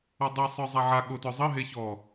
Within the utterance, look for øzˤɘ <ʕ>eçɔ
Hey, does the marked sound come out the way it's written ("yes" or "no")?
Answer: no